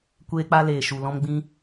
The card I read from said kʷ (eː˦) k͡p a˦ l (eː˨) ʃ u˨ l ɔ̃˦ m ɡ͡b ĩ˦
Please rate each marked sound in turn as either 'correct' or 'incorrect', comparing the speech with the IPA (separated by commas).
correct, correct